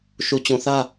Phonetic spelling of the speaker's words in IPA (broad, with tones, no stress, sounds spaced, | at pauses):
ʃ u˨ t͡ɕ ũ˨ θ ä˦